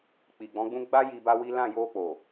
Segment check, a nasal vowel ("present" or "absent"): present